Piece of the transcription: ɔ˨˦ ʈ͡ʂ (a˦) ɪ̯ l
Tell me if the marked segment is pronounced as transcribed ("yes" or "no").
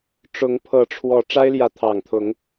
yes